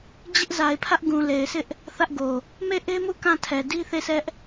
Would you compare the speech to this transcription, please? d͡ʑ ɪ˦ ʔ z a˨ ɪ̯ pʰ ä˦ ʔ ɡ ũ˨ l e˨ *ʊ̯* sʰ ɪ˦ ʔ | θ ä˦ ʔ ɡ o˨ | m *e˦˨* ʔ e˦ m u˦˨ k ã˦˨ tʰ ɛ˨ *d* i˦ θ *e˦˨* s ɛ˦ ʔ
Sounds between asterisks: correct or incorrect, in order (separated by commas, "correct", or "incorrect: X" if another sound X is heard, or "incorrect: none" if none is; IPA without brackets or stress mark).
incorrect: ɪ̯, correct, correct, correct